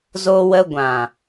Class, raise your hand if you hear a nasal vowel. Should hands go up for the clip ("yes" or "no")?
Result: yes